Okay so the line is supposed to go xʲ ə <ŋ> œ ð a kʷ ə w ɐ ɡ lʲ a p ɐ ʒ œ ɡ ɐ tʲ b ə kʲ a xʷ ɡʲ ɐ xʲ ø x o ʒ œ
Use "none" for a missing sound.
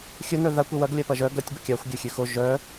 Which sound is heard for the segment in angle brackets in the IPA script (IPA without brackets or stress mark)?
n